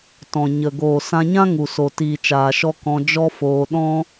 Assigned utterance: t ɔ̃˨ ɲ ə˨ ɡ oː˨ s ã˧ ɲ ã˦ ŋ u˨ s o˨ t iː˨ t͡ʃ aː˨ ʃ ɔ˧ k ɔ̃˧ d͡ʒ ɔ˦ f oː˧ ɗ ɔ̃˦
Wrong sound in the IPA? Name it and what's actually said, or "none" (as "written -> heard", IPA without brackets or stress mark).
none